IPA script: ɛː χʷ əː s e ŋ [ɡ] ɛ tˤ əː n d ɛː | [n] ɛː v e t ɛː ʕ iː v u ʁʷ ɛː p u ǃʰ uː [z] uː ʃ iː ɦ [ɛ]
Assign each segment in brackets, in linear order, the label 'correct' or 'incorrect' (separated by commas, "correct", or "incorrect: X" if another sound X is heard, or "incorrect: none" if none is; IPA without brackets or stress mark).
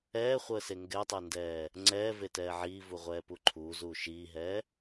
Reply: correct, incorrect: ŋ͡ǀ, correct, incorrect: ɛː